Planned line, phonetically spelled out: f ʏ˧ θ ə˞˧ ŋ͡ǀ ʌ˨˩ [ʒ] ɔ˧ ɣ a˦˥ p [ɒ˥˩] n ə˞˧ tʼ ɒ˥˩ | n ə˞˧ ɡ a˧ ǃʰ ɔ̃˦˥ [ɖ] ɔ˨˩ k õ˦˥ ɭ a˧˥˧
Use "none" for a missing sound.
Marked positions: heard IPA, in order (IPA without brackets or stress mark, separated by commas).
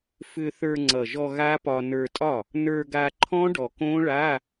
ʒ, ɒ˧, ɖ